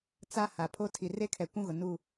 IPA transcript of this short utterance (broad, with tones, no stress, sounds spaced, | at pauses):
t͡s a˦ h a˨ pʰ o˦ tʰ i˨ r e˦ kʰ ɛ˨ kʷ ũ˦ ɣ ʊ˨ n u˦˨